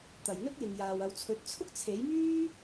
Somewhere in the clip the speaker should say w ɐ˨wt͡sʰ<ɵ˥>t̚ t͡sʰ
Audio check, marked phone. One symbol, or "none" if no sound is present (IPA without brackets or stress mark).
ɵ˨˥